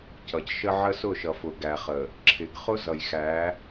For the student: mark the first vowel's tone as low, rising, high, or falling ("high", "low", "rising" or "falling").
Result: low